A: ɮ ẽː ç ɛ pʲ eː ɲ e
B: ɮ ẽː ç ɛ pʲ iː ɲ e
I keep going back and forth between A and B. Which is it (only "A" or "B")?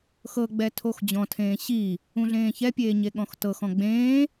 A